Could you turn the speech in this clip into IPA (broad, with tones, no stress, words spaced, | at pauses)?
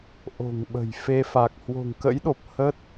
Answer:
ʔo̤˨˩ŋɓə̤˨˩jfe˧ fa˨˩k̚hwo̤˨˩ŋkə̰˧˥jɗo˨˩p̚ hə˦˥t̚